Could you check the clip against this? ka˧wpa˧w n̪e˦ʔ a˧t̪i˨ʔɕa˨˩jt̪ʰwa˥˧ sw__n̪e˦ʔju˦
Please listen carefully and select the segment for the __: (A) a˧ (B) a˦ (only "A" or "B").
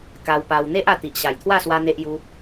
B